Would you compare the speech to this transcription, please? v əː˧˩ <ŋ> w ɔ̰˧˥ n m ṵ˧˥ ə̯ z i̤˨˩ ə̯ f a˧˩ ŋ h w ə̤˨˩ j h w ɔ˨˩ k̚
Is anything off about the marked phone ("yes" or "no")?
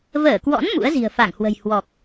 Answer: yes